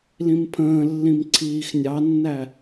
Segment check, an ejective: absent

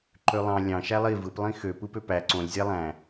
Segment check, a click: present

